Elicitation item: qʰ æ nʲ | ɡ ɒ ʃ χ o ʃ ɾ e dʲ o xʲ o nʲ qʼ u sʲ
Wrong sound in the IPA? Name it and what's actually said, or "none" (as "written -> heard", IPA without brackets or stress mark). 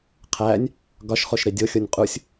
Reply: none